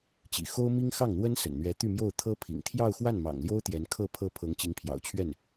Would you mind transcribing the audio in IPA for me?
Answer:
t͡ɕ ḭ˨˩ x o˥ ʊ̯ m i˥ ŋ x ɑ˥˩ ŋ n̪ w ə˥ n s ə̰˨˩ n n̪ ɥ ɛ˧˥ t̪ y˥˧ m j o˥˩ ʊ̯ t̪ʰ ɤ˥ pʰ ḭ˨˩ ŋ t̪ʰ j ɑ˥˧ ʊ̯ x w a˥˩ n m ɑ̰˨˩ ŋ l j o˥ ʊ̯ t̪ j ɛ˧˥ n kʰ ɤ˥˧ pʰ ɤ˥˩ pʰ ɤ˧˥ ŋ t͡ɕ i˧˥ ŋ pʰ j ɑ̰˨˩ ʊ̯ t͡ɕʰ ɥ ɛ˥˩ n

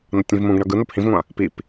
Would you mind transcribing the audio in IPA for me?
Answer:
n ʌ tʲ ĩ v m ũ ɡ ɳ ʌ ɡ ɯ n o p h ĩ v ŋʷ ã | p i p

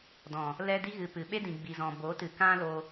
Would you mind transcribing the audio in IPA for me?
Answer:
d ɔ̃˨ | l ɛ˧ d i˧ ɣ ɨ˨ p ɨ˨ ɓ e˦ d ĩ˨ ɡ͡b i˨ z ɔ̃˨ b o˨˦ t ɨ˨ k ã˦ l o˧

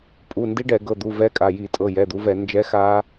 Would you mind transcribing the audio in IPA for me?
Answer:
pʼ u˩˧˩ n d i˦˥ ɖ ɛ˧˩˧ ɡ ɤ˩˧˩ d̪ u˩˧˩ v ɛ˦˥ kʼ a˩˧˩ j i˧˩˧ tʼ ɤ˩˧˩ j ɛ˩˧˩ d̪ u˨˦ v ɛ˧˩˧ n d͡ʒ ɛ˨˦ x a˦˥

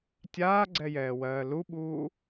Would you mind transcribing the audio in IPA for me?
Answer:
tʲ aː ɡ͡ǀ ɛ j ɛː w ɜː l u ɓ uː

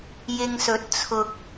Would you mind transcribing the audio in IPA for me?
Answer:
j ɪ˧ ŋ s ɵ˨˥ t̚ t͡sʰ ʊ˨ k̚

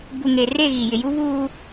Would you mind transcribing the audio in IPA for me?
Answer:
b u˨ ŋ e˨ r e˦˨ ɣ i˨ j ɪ˨ j u˦ β uː˦

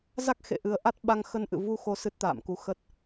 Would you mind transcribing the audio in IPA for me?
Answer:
z a˦˥ k̚ x ḛ˧˨ ʔ ɨ˨˩ ə̯ ʔ a˦˥ t̚ ɓ a˧ ŋ x ə˧ n ʔ ɨ̰˧˨ v u˧ x o˨˦ s ɨ˦˥ t̚ t̪ a̰ː˧˨ m k u˧ x ə˦˥ t̚

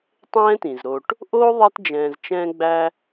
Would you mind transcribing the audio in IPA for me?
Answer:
tˤ ɛ̃ː˦ t ĩ˩ z ɾ o˨ ʈ | ʔ oː˦ ðˤ ɛ˥ t d͡ʒ ɛ̃ː˨ z t͡ʃ ɛ̃ː˥ ɡ͡b æ˥

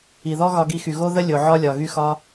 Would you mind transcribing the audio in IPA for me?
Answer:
i˨ ð ɔ˦ ɣ ɒ˧ ɡ i˧ x y˨ ɣ o˦ ð ə˦ lʲ o˨ ʕ ɒ˦ lʲ ɒ˨ ɣ y˦ x ɒ˦

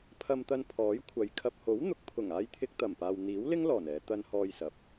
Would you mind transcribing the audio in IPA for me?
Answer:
pʰ ɐ˧ m t̪ ɐ˧ n pʰ ɔː˨˥ j kʷʰ ɐ˨˧ j kʰ ɐ˨ p̚ h o˨˥ w n̪ ʊ˨˥ k̚ pʰ ʊ˨˩ ŋ aː˧ j t̪ʰ ɪ˧ k̚ t̪ ɐ˨˩ m p aː˨ w n̪ iː˨˥ w l ɪ˥ ŋ l ɔː˨˩ n ɛː˨˧ t̪ ɐ˧ n h ɔː˧ j s ɐ˨ p̚

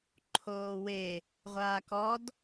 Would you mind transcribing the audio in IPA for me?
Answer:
ǃʰ oː w e | ʁʷ aː k ɔ d

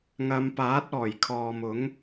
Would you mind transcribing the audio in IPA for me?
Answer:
ŋ ɐ˨˧ m p aː˨˥ t̚ ɔː˨˩ j kʰ ɔː˨ m ʊ˨˥ ŋ

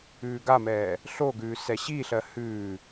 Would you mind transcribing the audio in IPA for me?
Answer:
ʉː ɡ a m ɛː | ɬ o ɡ ʉː s ɛ ɕ i ɬ ɜ h ʉː

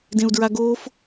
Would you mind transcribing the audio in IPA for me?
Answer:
d ẽ u̯ d ɹ a ɡ oː f

